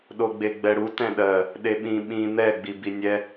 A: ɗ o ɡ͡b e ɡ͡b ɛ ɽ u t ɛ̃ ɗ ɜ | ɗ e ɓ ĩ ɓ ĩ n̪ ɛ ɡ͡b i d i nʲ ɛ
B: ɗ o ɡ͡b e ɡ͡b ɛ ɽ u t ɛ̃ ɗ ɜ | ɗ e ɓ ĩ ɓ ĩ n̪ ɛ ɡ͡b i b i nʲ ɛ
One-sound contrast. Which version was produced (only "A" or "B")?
B